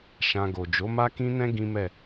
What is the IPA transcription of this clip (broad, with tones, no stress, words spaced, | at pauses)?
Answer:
ʃã˧ɡo˨ d͡ʒo˨˦ma˦kĩ˦nɛ̃˦ ɡĩ˦mɛ˦˨